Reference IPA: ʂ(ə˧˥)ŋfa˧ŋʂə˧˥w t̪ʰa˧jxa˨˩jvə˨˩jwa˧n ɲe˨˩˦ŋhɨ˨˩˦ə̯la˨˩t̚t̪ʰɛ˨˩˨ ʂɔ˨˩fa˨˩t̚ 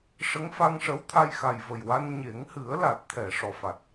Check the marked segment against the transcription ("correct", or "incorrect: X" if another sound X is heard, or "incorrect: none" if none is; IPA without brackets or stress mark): correct